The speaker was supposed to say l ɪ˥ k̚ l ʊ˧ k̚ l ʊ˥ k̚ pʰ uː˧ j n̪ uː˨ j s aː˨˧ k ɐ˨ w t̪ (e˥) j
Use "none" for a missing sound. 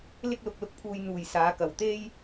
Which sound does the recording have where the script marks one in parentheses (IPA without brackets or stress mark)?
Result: e˥